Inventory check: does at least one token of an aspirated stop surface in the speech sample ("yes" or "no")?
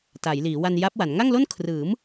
yes